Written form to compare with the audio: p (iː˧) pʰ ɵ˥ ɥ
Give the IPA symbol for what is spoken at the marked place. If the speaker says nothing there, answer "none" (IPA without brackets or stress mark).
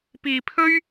iː˧